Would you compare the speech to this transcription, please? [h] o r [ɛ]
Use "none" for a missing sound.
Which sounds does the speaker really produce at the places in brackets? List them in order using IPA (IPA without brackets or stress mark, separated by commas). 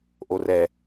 ʔ, ɛ